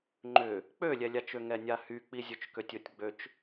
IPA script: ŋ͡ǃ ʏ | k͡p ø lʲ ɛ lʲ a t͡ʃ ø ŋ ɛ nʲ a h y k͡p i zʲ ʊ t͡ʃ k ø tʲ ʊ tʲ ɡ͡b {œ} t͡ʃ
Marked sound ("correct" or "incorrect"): incorrect